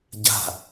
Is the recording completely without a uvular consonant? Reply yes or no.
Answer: yes